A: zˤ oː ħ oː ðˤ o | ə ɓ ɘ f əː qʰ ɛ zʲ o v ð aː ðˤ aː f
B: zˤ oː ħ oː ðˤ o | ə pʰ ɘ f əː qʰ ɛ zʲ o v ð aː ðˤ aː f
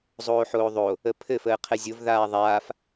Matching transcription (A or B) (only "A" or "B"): B